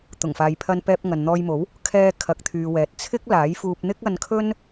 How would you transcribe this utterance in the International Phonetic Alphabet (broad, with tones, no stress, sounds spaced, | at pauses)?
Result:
t̪ ʊ˨˩ ŋ f aː˨ j pʰ ɐ˧ n p ɛː˧ p̚ ŋ ɐ˨ n n̪ ɔː˧ j m o˨˥ w | kʰ ɛː˧ kʰ ɐ˨˥ k̚ t̪ʰ yː˨ w ɛː˨ t̚ t͡sʰ ɪ˥ k̚ l aː˨˥ j f uː˧ p̚ n̪ ɪ˥ k̚ ɐ˧ n kʰ ɵ˥ n